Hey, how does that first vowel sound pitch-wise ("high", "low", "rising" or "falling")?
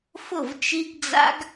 falling